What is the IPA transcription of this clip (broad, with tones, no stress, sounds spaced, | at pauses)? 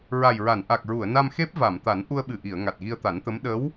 ɹ a˨˩ j ɹ a˨˩˨ n ʔ a˨˩ k̚ ɹ u˨˩˨ ə̯ n a˧ m x e˦˥ p̚ v a˨˩˨ m t̪ a˨˩˦ n ʔ u˧ ə̯ ɓ ɨ˨˩ ʔ i˨˩˨ ə̯ ŋ a˨˩ t̚ ɣ i˧ ə̯ t̪ a˨˩˦ n t̪ ə˧˥ m ɗ ə˧˥ w